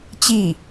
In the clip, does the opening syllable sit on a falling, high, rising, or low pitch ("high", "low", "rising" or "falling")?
falling